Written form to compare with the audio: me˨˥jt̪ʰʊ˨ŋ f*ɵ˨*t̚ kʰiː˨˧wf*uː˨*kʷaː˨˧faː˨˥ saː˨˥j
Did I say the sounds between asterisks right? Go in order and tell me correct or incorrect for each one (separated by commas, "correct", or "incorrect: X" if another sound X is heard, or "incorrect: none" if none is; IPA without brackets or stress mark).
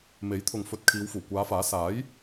correct, incorrect: uː˨˩